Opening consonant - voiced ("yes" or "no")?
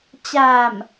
no